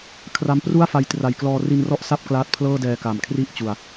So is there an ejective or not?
no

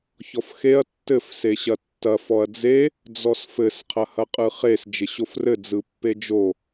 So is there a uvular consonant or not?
yes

